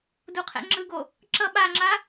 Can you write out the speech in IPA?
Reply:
duqʰɛ̰ŋ͡ǁɯɡo | ǁʌ ɓaŋ͡ǁa

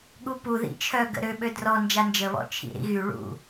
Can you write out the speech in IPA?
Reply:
ɠupu ðḭt͡ʃʰœ ɡə̰ɾø ɓødrɔ nd͡ʒand͡ʒə βɔ̰t͡ʃʰḭɾḭɣy ɭṵ

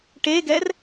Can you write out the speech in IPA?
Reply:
ʈeɡɛr

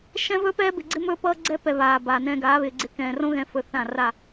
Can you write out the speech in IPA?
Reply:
ʃɛ̃˦vɵ˦pɛː˦ bɪ˨ɡ͡ǀɪ˦ mɵː˦pʌː˦ɡ͡ǀɛ˦pɛ˨ βaː˨ baː˨nɛ̃ː˦ ɡaː˨˦βɪː˨ɡ͡ǀɪ˦ kɛ̃ː˨ rõ˦ɣɛ̃˨ fɵ˦θã˦˨ ra˦˨

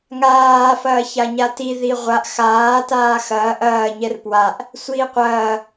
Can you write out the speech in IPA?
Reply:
ŋaː fɐːçaɲati ðiʁʷaʔ xaː taːxɐː ʔɐː ɲɛrpwaʔ | sʷiːqʷɐː

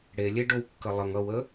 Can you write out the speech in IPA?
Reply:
ɽelʲe ɖowkːəlˠəŋ ʌwə

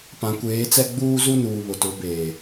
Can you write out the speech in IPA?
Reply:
pã˨kʷeː˨˦t͡sɛ˦ ɡ͡buː˦zu˦nuː˨ βʊ˨tʊ˨˦ beː˨

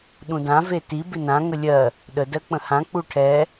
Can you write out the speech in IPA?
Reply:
ɗũdã veti bɪnã ŋəlʲɜ | ɗə dɜk͡pə̃hã k͡puʈʰɛ

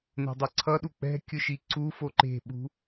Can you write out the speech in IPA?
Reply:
ne̤dˤʌǀʰʌɗu k͡pɛ̤ kʲɯʃiǀufo ǃe̤ɓṳ

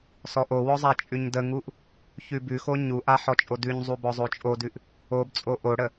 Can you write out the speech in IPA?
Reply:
sɔʔowɔ zˤat͡ʃʼʉɲdəŋuʔ | çʉbʉxo ɲuʔa ħɔt͡ʃʼodʉɲzˤu bɔzˤot͡ʃʼodʉʔ | obt͡sʼo ʔoɽə

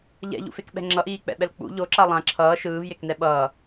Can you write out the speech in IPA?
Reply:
ʎɛ̰ʎṵfekɓɛ̤ ŋ͡ǁʌʔiːk͡pɛ̰ɓɛl k͡pṵ ʎoǁa lˠã ǁʰʌː ʃɯːvjeknɛ ɓʌː

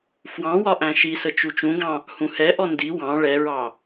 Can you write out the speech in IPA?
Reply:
fwɑ̃ wɒʔæ̃ʃisə t͡ʃut͡ʃũɡɑ̃ | hũhɛʔɔ ndi wɑ̃ ɭɛɹɑ

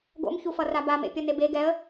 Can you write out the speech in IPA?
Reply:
ɡo̰mçufʌ rabamḛ pʲʌnebe ɡɛə̯

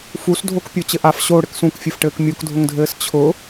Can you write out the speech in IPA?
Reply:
fusdʱokpʲo t͡ɕɘʔaf ɕo ɽɘksũkfʲɘf ʈɘːkmʲokdʱʊŋdʱɘːs t͡ɕʰʊ

